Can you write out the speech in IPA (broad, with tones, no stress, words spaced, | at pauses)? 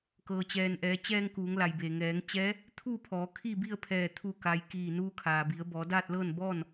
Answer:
kɤː˩t͡ɕɛː˩nʔɛː˩˧t͡ɕɛː˧ŋ kuː˩˧ŋla˩jbeː˩ ŋɛː˩˧ŋt͡ɕɛː˧˥ | t̪ʰu˥˨ pʰɔː˩˧kʰi˥˨bi˥˨ə̯pʰɛː˧˩ t̪ʰu˧˩ka˩j kiː˧˩ nuː˧kʰaː˩bi˩˧ə̯ bɔː˩˧daː˥˨t̚lɤː˥˨n bɔː˥˨n